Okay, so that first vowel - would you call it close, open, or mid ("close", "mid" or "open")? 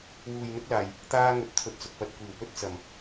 close